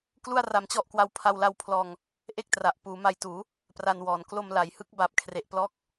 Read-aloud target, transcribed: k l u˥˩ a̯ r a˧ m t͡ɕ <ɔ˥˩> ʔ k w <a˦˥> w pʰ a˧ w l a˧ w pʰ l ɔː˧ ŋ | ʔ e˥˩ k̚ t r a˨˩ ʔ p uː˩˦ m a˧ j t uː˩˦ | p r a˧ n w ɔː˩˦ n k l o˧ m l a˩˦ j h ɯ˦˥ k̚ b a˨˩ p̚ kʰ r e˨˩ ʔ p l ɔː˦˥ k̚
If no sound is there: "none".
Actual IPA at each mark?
ɔ˥˩, a˦˥

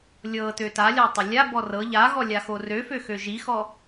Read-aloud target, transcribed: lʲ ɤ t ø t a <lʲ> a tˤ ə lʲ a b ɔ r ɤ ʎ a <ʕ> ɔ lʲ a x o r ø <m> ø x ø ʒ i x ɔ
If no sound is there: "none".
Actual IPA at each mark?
lʲ, ɣ, f

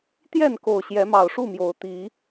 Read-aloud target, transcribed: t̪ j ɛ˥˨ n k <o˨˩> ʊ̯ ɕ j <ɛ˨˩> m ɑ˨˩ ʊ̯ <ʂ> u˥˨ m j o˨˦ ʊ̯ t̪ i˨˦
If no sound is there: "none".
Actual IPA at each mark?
o˨˩, ɛ˨˦, ʂ

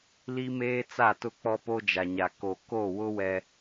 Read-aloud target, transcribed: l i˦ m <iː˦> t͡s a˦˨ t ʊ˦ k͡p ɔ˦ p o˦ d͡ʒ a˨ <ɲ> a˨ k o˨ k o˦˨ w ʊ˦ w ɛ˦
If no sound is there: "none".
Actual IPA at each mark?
eː˦, ɲ

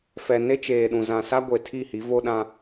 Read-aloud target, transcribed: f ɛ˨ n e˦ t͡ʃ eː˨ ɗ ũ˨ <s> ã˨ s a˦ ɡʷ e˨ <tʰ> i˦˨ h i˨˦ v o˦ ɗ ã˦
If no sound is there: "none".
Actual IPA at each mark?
z, tʰ

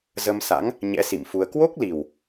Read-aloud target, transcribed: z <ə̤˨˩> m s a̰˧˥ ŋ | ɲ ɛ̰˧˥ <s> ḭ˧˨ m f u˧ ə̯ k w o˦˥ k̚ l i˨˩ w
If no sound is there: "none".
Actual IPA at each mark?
ə˧, s

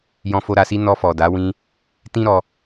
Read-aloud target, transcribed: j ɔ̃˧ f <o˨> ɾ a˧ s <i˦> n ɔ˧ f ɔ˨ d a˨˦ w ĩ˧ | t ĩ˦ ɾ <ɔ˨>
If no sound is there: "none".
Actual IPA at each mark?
o˧, i˦, ɔ˧

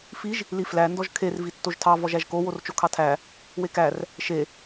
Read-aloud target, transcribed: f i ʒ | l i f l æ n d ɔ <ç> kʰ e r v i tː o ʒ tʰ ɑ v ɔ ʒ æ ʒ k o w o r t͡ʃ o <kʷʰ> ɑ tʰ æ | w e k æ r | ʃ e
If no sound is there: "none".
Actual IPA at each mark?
ʒ, kʰ

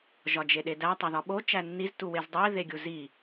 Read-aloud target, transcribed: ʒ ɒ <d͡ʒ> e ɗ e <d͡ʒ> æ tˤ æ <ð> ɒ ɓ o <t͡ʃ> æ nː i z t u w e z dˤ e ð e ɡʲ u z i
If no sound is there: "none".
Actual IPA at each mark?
d͡ʒ, d, ð, t͡ʃ

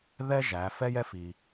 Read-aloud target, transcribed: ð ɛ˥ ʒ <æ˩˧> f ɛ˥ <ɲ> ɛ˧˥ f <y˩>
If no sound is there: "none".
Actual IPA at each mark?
æ˩˧, j, i˩

